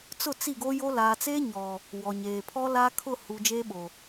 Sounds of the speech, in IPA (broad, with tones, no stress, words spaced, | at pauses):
t͡sʊ˦˨t͡si˦˨ɡo˦jo˦ laː˨t͡seː˦ɲɔ˨ | wɔ˨ɲeː˨pʰɔ˦la˦ kʰʊ˦˨hu˨ d͡ʒeː˦ɓo˨